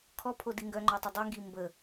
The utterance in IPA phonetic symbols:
kʰɔpʰodi ŋɡœŋ͡ǃɔtˤə dˤiŋɡi mbə

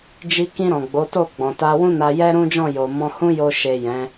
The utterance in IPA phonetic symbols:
d͡ʒi˧kĩ˧ ɾɔ̃˨ɡ͡bo˨˦to˦˨ ɡ͡bɔ̃˨ta˧wũ˦na˧ jɛ˦ɾũ˦d͡ʒɔ̃˦˨ jo˨mɔ̃˧hũ˦jo˧ ʃe˨ jɛ̃˨˦

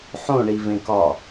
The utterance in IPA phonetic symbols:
ħõɳivẽkɒ

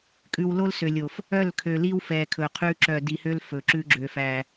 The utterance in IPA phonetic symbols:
kʼʉ˨wlo˦lsø˨lʲo˨f | œ˦˨lkʰø˨li˦w fɛ˨kʰɵ˨qʰʉ˦ ǁœ˨di˨hø˦l fɵ˨ ǁʉ˦ɡ͡ǁø˨fæ˨

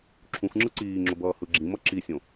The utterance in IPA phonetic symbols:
ǁʰũxŋ͡ǁɯ ǀiːŋ͡ǁo bʌːhɯɡ͡ǁĩmʌ ǁisʲõ

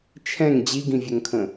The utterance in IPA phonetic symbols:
t͡ʃʰɛ̃ŋ d͡ʑiɡĩvʲɵŋkʰə̃

